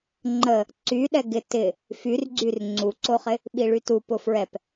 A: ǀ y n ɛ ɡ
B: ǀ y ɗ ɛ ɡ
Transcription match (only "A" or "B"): B